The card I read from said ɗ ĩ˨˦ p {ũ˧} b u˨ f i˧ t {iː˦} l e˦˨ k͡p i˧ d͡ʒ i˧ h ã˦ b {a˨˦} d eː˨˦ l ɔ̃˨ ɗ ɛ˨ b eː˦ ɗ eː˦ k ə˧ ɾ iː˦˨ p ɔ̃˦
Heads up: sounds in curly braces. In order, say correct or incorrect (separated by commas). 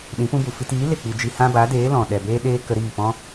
incorrect, incorrect, correct